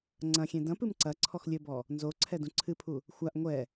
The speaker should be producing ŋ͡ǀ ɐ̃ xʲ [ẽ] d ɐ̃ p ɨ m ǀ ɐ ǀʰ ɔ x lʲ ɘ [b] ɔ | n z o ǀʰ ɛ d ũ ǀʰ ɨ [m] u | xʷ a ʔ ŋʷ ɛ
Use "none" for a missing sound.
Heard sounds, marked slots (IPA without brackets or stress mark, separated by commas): ẽ, b, pʰ